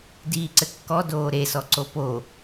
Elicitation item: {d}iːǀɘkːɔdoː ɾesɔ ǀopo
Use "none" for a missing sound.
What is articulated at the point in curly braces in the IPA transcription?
d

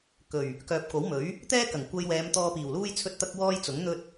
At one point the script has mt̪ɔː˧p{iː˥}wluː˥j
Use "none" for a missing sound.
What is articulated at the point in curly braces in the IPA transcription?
iː˨˩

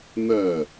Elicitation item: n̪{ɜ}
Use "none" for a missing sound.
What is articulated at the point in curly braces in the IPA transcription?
ɜ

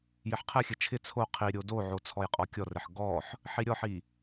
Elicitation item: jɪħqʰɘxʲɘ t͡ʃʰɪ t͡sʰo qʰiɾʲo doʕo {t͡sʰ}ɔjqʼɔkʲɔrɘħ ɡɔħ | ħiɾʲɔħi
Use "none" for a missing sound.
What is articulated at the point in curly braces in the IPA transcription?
t͡sʰ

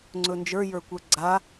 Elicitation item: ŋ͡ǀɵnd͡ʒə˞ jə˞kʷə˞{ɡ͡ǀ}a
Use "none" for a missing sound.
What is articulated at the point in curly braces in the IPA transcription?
ɡ͡ǀ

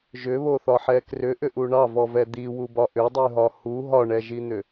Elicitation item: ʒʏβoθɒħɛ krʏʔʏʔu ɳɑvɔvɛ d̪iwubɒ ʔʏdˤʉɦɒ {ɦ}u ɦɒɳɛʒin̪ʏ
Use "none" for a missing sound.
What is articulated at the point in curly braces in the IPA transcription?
h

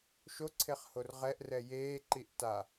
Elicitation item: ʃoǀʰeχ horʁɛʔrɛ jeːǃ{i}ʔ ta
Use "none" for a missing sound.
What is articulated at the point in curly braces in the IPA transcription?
i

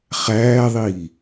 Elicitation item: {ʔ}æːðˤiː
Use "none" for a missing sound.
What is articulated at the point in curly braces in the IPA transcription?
χ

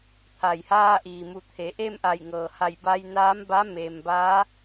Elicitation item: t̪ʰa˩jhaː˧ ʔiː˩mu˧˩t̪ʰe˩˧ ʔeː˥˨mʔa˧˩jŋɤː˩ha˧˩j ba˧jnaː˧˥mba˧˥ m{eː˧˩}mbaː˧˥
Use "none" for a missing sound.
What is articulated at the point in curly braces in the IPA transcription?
eː˩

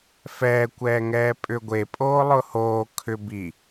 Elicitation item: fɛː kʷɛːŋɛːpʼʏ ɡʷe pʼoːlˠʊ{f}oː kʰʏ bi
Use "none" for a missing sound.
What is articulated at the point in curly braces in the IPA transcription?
h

